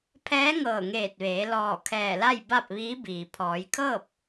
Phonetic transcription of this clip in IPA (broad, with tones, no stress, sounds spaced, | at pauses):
pʰ ɛː˧˥ ŋ ɤː˧˩ ŋ eː˧˩ t̚ ʋ eː˩˧ l ɔː˧˩ kʰ ɛː˧˩ l a˥˨ j b a˥˨ p̚ ʋ iː˧˥ b iː˩ pʰ ɔː˩˧ j kʰ ɤː˥˨ p̚